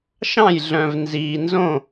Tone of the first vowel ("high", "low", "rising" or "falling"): falling